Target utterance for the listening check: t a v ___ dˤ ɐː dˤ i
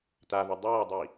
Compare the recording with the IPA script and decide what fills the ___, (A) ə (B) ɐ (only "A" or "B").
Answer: B